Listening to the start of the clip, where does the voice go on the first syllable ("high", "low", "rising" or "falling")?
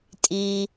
low